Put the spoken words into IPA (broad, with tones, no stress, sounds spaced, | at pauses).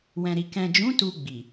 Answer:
w ɛ̃˨ ɾ i˨ k ɛ̃˨ d͡ʒ ũ˨˦ t u˧ ɡ͡b i˨